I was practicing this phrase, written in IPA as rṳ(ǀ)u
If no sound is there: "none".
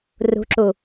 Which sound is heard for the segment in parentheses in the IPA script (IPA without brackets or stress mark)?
ǁ